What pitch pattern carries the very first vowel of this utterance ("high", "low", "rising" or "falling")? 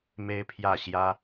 high